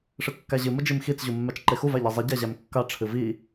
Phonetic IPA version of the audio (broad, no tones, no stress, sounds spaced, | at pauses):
ʂ ɨ kː æ ʑ ɨ m ə d͡ʒ i m x i t͡s ʑ u mː æ t͡ʃ ǃ e x u v æ ʎ i zˤ i ɟ æ ʑ æ m kː a ʈ͡ʂʰ ɨ v i